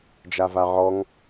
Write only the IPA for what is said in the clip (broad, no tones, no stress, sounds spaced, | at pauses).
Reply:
d͡ʒ a v a ʕ ɔ ŋ